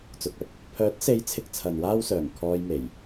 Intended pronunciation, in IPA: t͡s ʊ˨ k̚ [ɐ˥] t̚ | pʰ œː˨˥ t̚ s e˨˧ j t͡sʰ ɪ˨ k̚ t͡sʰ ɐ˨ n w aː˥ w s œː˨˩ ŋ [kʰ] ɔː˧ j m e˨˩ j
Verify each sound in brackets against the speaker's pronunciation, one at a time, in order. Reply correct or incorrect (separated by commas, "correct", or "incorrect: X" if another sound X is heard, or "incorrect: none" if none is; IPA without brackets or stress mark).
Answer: correct, correct